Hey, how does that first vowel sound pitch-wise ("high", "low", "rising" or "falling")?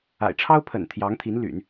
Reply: low